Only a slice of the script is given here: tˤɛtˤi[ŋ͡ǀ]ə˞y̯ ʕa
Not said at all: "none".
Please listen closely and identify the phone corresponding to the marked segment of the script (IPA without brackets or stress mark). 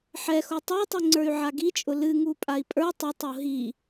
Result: ŋ͡ǀ